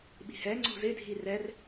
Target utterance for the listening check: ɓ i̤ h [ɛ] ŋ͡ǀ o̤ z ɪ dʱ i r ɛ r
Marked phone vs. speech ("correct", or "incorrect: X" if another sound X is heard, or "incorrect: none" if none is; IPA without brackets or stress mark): correct